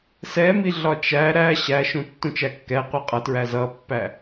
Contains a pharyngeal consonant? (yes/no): no